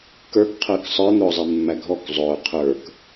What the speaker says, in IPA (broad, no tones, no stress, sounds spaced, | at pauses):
k ə˞ k qʰ əː k sˤ ə˞ n̪ ʊː zˤ ɛ mː æ ɡʱ ɔ k zˤ ʊː qʰ ə˞ k